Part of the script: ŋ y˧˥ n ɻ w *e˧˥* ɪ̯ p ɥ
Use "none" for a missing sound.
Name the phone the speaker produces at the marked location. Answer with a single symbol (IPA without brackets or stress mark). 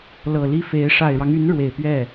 e˨˩